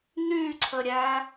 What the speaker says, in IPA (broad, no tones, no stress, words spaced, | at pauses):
n̪yǀʰəɾʲæ